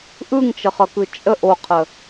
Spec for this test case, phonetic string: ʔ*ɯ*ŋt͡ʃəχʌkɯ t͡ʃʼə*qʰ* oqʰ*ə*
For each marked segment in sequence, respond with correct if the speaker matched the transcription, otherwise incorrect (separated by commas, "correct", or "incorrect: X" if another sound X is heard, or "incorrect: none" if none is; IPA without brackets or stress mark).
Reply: correct, incorrect: ʔ, correct